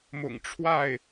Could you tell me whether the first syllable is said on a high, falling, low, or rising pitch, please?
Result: low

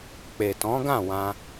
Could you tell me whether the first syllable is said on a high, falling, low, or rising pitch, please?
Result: low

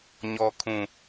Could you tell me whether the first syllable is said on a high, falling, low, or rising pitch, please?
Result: low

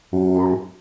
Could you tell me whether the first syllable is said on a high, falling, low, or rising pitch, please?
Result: low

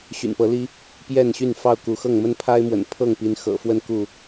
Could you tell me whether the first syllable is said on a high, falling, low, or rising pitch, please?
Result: low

